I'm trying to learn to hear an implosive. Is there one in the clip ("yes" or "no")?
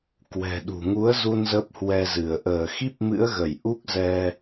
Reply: yes